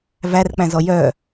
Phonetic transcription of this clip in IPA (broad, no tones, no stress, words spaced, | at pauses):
værk͡pæ̃zɔ jœ